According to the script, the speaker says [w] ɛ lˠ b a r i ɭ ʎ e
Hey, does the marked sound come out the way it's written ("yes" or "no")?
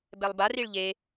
no